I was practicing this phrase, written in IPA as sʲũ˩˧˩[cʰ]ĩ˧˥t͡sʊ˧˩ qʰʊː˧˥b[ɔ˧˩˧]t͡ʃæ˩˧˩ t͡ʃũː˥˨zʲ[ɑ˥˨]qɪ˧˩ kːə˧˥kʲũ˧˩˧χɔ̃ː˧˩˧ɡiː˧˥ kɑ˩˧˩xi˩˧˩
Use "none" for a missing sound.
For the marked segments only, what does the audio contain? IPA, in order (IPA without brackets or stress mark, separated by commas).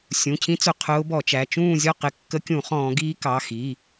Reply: cʰ, ɔ˧˩˧, ɔ˥˨